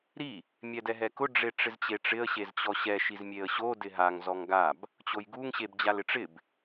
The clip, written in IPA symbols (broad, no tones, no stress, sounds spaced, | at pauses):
ɾ i | mʲ ɛ d ɛ ɦ ɛ k ʊ ɖ͡ʐ e ʈ͡ʂ ɪ z t͡ɕ e ʈ͡ʂ ɪ ə̯ ɕ e z t͡ɕ ɔ ɕ ɛ ʃ i z mʲ e ə̯ ɕ o d ɪ ɦ a ŋ z ɔ ŋ ɡ a b | t͡ɕ o j ɡ u ŋ ɕ e b d͡ʑ a l ɪ ʈ͡ʂ ɪ b